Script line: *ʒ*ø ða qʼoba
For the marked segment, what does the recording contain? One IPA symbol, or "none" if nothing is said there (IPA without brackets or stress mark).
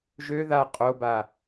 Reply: ʒ